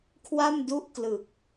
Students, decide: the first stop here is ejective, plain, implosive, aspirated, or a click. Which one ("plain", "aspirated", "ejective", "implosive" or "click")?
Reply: aspirated